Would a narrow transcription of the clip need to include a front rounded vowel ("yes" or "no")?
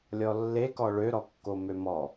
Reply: yes